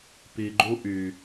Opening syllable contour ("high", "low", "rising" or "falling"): low